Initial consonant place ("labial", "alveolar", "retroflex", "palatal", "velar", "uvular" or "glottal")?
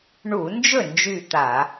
retroflex